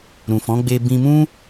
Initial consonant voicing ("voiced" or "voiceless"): voiced